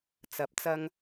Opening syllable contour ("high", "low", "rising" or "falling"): rising